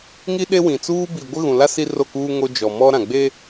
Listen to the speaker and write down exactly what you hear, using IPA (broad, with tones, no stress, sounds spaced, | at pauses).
ŋ i˦ ɗ e˦ w ĩ˨ t͡s uː˦ b i˨ ɡʷ ɪ˦ ɣ ũ˨ l a˦ s i˦ r o˦˨ k uː˦ ŋ o˦ d͡ʒ ɔ˨ m ɔ˦ ɾ ã˨ ɡ͡b e˦